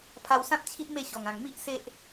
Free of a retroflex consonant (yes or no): yes